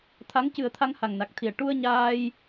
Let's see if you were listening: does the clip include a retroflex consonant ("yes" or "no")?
yes